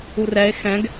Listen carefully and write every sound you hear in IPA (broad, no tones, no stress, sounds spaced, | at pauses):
u r ɛ e̯ x ɛ̃ ɡ